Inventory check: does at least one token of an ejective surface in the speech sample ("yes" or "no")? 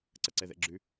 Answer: no